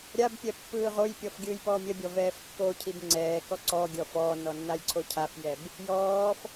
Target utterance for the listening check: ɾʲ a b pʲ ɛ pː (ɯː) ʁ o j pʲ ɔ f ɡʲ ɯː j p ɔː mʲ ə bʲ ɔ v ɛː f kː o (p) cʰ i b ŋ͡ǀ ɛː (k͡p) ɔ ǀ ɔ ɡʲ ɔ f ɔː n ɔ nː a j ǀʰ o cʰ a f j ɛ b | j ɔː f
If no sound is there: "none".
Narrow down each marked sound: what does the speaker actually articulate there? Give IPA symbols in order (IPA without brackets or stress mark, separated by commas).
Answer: ɯː, none, k